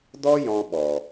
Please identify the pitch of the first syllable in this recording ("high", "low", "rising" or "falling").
high